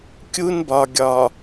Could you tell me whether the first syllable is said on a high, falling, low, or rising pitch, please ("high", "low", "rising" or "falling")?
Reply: high